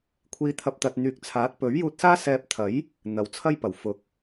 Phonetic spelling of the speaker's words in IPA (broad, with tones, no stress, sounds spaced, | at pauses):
kʷʰ iː˧ t̪ʰ ɐ˧ p̚ t̪ ɐ˨ t̚ n̪ yː˨ k̚ t͡sʰ aː˨˥ t̚ p ɵ˨˥ ɥ j uː˧ t̚ s aː˥ s ɛː˧ p̚ t̪ʰ ɐ˨˥ j | n̪ ɐ˨ w t͡sʰ ɐ˥ j p ɐ˨˩ w f ʊ˨˥ k̚